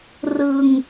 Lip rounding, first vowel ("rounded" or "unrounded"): unrounded